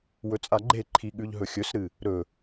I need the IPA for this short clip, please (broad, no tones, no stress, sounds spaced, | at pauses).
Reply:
w ɵ t͡sʼ a ɡ͡ǃ e ǃʰ i ɠ ʉ ʎ ɦ ɵ xʲ ɵ s ɾ ɨ | ɾ ɵ